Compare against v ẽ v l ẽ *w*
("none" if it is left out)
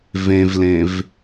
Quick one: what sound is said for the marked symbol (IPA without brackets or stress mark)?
v